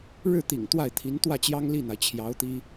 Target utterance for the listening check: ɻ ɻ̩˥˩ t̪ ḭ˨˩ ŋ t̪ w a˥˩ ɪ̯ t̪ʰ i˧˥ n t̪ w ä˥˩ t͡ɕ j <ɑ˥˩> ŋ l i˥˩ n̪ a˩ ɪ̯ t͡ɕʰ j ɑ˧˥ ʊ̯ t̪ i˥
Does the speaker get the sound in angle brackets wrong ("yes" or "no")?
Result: yes